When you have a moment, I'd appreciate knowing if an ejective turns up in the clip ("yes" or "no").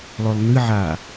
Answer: no